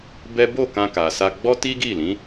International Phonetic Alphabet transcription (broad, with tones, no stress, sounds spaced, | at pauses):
b ɛ˦ b o˦˨ k ã˧ k a˨ s a˧ ɡ͡b ɔ˦ t i˦ ɡ i˦˨ l ĩ˨˦